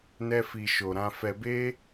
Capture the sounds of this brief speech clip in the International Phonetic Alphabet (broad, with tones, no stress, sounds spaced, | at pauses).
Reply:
n ɛ˧ f i˨ ʃ o˨ ɾ ã˧ f ɛ˧ b e˦